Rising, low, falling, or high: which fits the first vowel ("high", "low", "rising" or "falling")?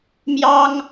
high